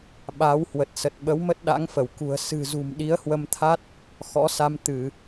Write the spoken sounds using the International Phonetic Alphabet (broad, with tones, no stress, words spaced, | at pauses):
ɓa˨˦w hwə˨˩t̚sə˨˩t̚ɓə˨˦w mə˦˥t̚ɗa̰˧˥ŋfə˧˩w kṳ˨˩ə̯ sɨ̤˨˩zṳ˨˩m ɗi˨˦ə̯hwə˧mt̪ʰa˦˥t̚ | xɔ̰˧˥sa˧m t̪ɨ˧˩˨